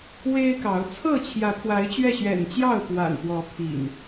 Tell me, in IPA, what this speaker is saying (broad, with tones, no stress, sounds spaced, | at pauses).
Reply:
w e˦ ɪ̯ k ɑ˨˦ ʊ̯ t͡sʰ ɤ˥˨ t͡ɕʰ j ä˨˦ t̪ʰ w a˨˦ ɪ̯ t͡ɕ ɥ ɛ˥˨ ɕ ɥ ɛ̰˨˩ n t͡ɕ j ɑ˥˨ ʊ̯ p w a̰˨˩ n p w ɔ˨˦ pʰ ḭ˨˩ ŋ